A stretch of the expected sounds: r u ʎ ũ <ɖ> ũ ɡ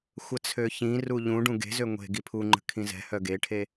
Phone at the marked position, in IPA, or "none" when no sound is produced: ɖ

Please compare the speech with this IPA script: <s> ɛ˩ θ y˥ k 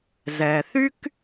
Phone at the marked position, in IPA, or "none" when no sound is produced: z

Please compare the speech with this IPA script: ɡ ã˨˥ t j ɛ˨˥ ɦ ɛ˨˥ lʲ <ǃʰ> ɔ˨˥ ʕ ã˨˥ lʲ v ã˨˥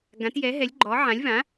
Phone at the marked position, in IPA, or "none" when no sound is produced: ɡ͡ǃ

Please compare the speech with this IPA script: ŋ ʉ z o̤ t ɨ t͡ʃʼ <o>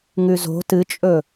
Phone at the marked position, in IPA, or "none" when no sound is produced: ɵ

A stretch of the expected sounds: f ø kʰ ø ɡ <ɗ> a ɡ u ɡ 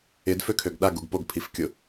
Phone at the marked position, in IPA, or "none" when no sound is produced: ɗ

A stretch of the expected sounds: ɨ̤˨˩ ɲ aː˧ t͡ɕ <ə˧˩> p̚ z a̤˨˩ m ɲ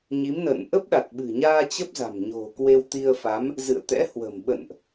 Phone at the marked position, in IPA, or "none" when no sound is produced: ə˦˥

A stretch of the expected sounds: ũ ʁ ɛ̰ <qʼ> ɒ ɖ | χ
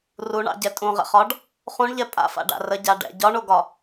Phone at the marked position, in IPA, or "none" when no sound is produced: χ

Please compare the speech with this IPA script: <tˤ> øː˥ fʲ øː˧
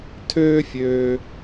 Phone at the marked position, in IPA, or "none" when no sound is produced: tʰ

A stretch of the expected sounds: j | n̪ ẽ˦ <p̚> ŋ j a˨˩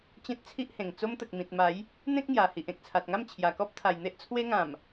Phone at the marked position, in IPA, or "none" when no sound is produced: k̚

